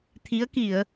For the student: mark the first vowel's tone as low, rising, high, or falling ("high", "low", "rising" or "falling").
rising